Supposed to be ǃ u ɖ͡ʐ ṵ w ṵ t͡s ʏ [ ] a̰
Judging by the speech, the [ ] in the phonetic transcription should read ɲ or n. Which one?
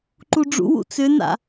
n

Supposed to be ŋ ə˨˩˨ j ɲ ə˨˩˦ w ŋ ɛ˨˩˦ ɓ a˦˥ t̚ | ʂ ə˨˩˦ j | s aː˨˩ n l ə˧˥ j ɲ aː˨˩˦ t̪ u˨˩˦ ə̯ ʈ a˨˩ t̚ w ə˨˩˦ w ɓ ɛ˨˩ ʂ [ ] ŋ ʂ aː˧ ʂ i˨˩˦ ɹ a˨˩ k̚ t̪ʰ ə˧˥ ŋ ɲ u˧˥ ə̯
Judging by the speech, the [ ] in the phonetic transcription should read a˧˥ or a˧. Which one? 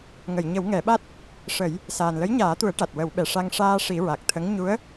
a˧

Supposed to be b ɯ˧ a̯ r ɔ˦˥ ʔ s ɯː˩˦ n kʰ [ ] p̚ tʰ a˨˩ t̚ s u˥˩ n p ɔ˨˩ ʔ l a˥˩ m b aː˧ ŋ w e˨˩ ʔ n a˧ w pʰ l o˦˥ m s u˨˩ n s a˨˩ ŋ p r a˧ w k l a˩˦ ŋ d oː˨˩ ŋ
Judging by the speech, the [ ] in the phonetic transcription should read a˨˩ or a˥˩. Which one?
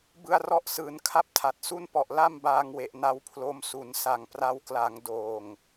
a˥˩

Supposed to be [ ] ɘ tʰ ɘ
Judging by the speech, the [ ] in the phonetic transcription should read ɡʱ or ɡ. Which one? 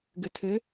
ɡ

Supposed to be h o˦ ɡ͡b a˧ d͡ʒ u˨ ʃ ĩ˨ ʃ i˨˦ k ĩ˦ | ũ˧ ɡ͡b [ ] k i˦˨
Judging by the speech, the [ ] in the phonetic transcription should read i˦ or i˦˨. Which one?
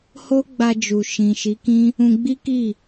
i˦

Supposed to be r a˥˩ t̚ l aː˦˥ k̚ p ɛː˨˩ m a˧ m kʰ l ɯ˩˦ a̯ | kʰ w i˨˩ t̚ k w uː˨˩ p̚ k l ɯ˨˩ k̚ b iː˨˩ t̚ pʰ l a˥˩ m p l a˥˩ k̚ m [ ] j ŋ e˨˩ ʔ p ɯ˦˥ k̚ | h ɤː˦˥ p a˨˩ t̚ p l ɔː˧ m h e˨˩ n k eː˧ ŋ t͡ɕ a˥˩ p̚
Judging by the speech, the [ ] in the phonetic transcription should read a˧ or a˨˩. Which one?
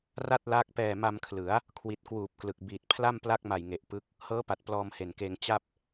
a˨˩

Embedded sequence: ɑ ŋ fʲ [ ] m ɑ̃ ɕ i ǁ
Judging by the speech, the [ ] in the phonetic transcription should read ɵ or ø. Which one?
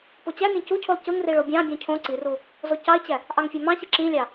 ø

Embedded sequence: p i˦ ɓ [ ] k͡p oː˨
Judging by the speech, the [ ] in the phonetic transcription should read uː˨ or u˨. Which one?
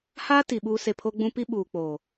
uː˨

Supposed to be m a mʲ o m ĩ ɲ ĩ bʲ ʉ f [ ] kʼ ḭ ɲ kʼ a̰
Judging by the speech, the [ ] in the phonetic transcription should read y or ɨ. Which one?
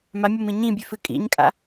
ɨ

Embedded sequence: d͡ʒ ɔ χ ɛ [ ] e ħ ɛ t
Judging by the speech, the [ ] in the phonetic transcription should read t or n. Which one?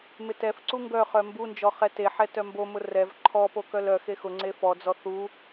t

